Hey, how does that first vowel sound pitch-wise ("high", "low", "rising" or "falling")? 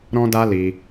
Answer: high